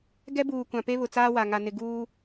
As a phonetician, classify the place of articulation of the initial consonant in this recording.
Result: velar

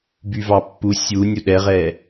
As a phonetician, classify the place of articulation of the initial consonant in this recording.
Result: labial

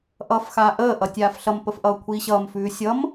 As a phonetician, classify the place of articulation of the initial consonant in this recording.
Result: glottal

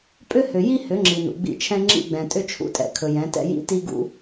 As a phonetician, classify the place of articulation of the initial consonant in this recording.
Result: labial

